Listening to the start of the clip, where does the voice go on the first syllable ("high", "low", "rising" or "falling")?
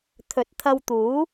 rising